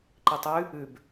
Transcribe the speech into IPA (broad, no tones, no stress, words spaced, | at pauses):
ǃitˤʉ | ʉb